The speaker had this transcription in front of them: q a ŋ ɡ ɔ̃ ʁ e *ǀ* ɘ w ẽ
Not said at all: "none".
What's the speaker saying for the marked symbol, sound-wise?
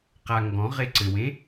ǀ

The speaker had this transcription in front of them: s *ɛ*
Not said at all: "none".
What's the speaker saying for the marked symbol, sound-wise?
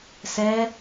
ɛ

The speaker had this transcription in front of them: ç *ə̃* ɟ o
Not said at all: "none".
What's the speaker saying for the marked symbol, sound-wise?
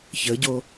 ə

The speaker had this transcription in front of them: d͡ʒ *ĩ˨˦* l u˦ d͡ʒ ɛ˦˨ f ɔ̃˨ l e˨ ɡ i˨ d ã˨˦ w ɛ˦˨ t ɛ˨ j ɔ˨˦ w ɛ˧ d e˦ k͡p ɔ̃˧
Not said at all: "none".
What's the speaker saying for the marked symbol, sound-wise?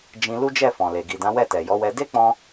ĩ˧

